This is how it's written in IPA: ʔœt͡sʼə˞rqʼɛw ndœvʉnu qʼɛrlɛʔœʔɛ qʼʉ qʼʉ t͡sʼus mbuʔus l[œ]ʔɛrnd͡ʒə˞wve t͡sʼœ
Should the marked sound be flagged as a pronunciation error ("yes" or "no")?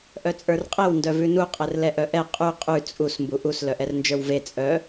no